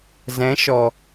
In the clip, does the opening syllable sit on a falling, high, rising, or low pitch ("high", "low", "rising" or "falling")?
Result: rising